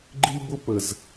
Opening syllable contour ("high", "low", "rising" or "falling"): high